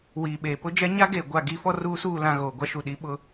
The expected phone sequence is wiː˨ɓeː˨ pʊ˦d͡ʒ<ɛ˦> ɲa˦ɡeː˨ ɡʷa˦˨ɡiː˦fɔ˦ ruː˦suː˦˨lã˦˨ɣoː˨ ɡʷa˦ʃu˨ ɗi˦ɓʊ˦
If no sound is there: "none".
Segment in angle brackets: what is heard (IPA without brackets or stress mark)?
ɛ˦